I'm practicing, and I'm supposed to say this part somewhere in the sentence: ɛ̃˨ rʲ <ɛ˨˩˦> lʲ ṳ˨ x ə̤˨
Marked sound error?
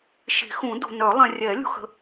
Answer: no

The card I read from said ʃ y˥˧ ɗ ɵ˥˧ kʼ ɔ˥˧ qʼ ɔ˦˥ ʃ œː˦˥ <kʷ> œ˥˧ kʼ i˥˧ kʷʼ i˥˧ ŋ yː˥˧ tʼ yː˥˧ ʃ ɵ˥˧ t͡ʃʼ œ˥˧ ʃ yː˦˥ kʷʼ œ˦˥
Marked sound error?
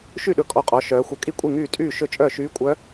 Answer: yes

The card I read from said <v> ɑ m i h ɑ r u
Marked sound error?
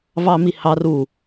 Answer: no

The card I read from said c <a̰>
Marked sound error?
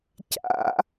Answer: no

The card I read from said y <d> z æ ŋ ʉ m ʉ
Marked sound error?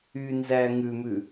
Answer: yes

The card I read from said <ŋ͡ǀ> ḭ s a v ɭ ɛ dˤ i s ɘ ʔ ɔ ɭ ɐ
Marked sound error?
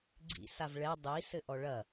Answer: yes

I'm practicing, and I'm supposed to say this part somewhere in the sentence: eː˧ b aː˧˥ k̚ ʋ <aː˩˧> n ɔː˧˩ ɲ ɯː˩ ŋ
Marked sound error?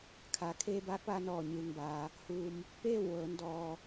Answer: yes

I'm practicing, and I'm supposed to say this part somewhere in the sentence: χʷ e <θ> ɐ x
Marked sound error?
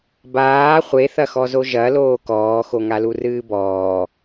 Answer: no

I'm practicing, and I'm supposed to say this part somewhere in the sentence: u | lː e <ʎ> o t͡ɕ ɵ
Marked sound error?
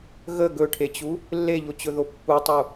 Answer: no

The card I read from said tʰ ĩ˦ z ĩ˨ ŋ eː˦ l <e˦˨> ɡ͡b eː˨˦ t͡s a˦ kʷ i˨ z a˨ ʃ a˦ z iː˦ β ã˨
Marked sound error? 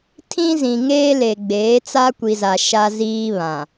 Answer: yes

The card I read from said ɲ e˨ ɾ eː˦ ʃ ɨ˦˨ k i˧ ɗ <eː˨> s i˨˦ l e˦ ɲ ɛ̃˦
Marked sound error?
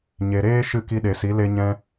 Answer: yes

